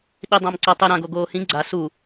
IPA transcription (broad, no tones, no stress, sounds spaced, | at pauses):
ɗ i dˤ ã m ǀ ʌ tˤ e ɾ ã ɡ o ɡ oː h ĩ ɡ͡ǀ a s u